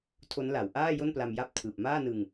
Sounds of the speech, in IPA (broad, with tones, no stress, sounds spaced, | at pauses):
tʰ o˦˥ n l a˩˦ w ʔ aː˥˩ j o˥˩ n p l a˧ m j a˥˩ p̚ tʰ ɯː˨˩ p̚ m aː˥˩ n ɯ˧ ŋ